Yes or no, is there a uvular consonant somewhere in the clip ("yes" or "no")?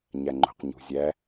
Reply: yes